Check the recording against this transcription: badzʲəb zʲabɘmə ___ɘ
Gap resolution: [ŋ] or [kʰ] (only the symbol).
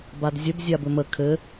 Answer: kʰ